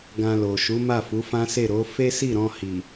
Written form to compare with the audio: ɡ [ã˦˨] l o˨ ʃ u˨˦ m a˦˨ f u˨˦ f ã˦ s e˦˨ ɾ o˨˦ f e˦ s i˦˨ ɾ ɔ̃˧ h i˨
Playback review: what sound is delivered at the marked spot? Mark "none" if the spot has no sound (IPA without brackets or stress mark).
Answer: ã˧